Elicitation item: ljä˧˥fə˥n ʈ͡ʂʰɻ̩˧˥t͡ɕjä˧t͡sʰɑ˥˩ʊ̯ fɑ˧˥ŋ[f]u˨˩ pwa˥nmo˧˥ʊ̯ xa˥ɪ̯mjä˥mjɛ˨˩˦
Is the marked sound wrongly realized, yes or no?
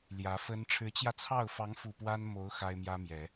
no